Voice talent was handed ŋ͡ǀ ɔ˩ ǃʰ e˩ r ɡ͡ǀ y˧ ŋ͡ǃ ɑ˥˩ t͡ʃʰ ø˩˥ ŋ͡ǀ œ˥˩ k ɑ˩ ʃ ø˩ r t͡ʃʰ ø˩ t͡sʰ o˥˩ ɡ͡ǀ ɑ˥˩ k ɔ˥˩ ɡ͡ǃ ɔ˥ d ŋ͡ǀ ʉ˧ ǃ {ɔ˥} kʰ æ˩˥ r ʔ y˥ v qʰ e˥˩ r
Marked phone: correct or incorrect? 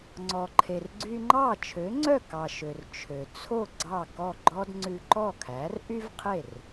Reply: incorrect